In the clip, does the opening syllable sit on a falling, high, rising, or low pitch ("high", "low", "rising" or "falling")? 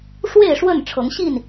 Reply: falling